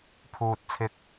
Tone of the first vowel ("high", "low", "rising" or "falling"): high